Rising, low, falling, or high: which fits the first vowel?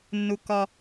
low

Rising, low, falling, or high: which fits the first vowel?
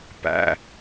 low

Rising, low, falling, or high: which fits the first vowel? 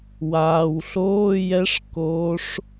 low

